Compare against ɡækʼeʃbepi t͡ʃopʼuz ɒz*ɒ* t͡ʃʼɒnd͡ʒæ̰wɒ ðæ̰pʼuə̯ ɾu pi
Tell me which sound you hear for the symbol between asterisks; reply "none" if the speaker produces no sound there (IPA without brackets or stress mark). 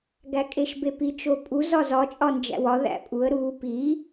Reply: ɒ